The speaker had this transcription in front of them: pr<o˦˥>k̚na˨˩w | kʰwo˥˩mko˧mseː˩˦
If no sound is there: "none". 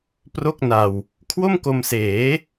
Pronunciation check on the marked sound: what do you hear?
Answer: o˥˩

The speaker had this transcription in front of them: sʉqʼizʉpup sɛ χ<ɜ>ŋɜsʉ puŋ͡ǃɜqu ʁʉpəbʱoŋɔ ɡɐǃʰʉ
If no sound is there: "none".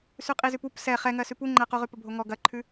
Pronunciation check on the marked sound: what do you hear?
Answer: ɛ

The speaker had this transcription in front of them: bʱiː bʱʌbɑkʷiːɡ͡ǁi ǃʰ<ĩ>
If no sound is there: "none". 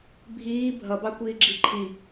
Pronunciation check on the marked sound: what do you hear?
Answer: i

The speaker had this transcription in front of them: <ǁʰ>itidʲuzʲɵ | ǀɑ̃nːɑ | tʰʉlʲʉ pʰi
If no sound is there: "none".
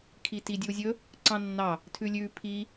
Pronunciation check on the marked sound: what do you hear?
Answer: kʰ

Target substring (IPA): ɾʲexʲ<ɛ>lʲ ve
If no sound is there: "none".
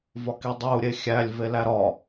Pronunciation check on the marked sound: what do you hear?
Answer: æ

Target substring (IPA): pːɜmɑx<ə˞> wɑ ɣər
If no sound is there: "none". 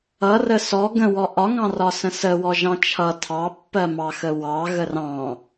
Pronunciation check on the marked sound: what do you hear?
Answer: ə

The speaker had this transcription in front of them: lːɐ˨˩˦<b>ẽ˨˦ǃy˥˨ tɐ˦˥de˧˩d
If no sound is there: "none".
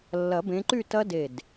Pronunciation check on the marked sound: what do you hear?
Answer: b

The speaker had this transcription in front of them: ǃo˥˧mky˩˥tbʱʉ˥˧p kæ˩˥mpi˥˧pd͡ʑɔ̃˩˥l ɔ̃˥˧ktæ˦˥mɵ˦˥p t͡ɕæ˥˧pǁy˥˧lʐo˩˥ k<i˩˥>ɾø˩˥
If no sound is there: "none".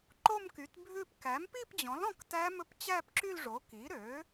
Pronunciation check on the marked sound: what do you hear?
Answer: i˩˥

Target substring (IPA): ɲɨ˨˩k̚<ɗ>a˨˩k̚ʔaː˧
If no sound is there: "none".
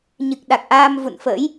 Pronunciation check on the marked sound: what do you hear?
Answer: ɗ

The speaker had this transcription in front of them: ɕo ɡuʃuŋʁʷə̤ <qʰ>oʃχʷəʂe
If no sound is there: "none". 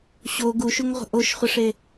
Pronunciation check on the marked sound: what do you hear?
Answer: ʔ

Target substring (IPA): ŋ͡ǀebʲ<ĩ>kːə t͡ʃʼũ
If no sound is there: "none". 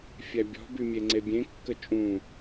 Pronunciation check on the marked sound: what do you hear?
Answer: ẽ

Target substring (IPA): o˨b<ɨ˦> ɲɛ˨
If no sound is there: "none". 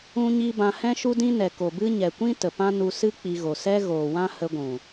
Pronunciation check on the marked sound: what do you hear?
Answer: ɨ˦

